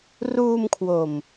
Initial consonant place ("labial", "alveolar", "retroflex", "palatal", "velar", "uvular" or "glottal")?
alveolar